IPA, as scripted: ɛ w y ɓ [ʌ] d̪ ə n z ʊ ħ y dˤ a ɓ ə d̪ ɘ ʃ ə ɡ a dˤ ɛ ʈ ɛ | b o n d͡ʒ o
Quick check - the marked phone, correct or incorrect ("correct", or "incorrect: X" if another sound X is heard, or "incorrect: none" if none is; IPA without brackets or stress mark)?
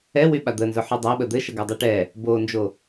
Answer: incorrect: a